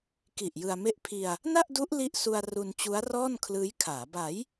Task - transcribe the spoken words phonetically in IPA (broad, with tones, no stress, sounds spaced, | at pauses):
k i˨˩ ʔ j ɯ˧ a̯ m e˦˥ ʔ pʰ i˧ a̯ | n a˥˩ ʔ d u˦˥ ʔ l i˥˩ ʔ s u˧ a̯ r u˧ n t͡ɕ u˦˥ a̯ r ɔː˥˩ n kʰ l ɯː˦˥ j kʰ aː˩˦ b a˩˦ j